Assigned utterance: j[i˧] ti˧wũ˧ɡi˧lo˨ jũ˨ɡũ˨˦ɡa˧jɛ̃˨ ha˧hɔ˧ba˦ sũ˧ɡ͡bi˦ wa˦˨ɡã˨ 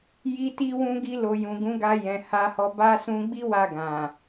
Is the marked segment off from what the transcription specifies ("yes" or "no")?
no